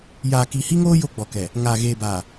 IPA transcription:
j aː˨ k i˨ h i˦ ŋ oː˦ j o˦ ɡ͡b ɔ˨ k ɛ˨ | ŋ aː˨ ɣ eː˨ b aː˨

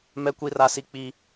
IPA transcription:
m ɛ˦ kʷ i˦ r a˦ s i˦ k͡p i˦

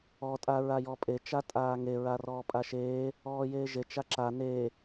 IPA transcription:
ɔ tʼ a ɹ a j ɔ pʼ e t͡ʃ a tʼ aː ŋ e ɹ a r ɔː pʼ a ʃ eː | ɔː j eː ʒ e t͡ʃ a ǁ a n e

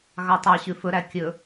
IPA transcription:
ɣ ɑ tˤ ɑ ɕ ʉ f ɵ ɾ æ kʲ ɵ

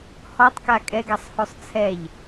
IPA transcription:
h ɔ tˤ k a kʼ ɛ ɡ a sˤ h o sˤ t͡sʰ ɛ ʎ

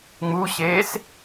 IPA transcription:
ŋ͡m u ɕ eː s

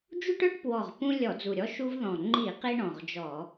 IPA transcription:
d͡ʒ u˦ ʈ œ˦ ʈ p w ɔ˨˩ ʁ p ũ˦ lʲ ɔ˧˩˧ d͡z u˨˩ ɾʲ ɔ˦ ʃ u˦ v ð ɔ̃˨˩ ŋ͡ǃ i˧˩˧ q i˦ ɳ ɔ̃˨˩ ʁ d͡ʒ ɔ˧˩˧

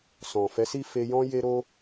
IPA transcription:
s ɔ̃˨ f ɛ˨˦ s i˦˨ f e˧ j ɔ̃˦ j e˦ ɾ o˦

